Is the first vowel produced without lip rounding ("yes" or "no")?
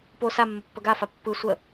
no